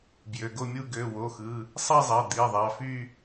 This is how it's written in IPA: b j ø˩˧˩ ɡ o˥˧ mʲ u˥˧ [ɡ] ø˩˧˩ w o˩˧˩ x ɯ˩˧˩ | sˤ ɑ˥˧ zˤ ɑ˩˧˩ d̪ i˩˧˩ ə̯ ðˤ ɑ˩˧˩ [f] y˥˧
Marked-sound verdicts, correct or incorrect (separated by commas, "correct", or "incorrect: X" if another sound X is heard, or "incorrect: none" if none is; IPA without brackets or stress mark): correct, correct